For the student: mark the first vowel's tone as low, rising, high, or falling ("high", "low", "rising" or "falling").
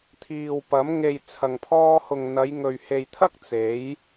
low